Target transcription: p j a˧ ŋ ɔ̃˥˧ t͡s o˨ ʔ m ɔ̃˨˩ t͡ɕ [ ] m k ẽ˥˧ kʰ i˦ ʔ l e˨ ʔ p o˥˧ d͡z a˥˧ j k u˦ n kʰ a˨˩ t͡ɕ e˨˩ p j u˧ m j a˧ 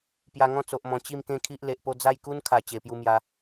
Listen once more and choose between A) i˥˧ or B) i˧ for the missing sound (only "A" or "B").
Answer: A